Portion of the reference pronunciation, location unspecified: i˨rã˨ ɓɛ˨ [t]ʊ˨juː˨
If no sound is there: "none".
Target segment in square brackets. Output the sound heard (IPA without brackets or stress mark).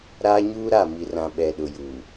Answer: ɗ